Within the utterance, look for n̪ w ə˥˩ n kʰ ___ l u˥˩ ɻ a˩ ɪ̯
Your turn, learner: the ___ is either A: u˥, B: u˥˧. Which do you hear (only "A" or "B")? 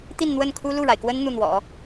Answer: A